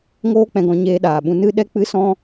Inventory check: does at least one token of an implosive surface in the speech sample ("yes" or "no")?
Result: yes